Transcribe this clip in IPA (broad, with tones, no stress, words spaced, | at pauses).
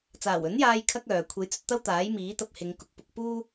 t͡saː˨˩wɵ˨˥njaː˧j kʰɐ˥k̚œː˨ kʷʰe˨˥jt͡sɵ˧t̚t̪ɐ˥w t̪aː˨˥j miː˨˥t̪ɐ˧p̚hɪ˨˧ŋ kʊ˨˥k̚pʊ˧k̚ puː˥